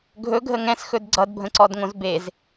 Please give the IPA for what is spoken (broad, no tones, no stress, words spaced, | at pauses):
ɡʱɵɡʱə ŋɛ̃sxɵd ɡ͡ǀʌdbʱə̃ǀɔdŋõz bez